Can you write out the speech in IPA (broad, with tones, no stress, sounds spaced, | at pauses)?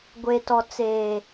ɡʷ e˨ t ɔ˨ t͡s eː˨